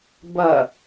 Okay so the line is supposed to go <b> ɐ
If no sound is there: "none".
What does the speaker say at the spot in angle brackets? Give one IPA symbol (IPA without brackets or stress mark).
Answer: b